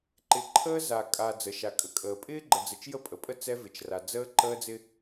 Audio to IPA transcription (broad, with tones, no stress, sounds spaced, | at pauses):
ǃ ɪ˨ ǃʰ əː˦ z a˨ kʼ a˨ d͡z ə˨ ʃ a˨ kʼ ə˨ kʼ əː˨ pʼ ɪː˦ ɡ͡ǃ ə˨ d͡z ə˨ t͡ʃ j ə˦ pʼ ə˨ pʼ ə˦ t͡s ɛ˦ v ɪ˨ t͡ʃ r a˨ d͡z əː˦ ǃ əː˦ d͡z ɪ˦